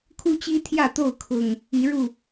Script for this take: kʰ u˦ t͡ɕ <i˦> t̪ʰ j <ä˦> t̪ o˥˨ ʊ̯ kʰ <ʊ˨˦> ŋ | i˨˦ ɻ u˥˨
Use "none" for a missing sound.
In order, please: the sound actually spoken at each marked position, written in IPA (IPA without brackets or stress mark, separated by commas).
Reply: i˦, ä˥˨, ʊ˨˩